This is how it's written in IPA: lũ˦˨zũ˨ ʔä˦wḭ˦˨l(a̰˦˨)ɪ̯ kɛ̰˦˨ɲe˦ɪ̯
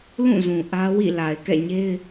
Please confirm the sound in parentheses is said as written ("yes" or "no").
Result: no